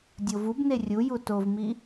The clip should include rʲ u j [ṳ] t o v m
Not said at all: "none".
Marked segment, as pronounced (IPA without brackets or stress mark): u